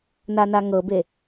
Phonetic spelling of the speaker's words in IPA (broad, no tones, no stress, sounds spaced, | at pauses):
n a n a ŋ ɤ b e